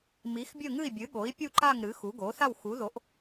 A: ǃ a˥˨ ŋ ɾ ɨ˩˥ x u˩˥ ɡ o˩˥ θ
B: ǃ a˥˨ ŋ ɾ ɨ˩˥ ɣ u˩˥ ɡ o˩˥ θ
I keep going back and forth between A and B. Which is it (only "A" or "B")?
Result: A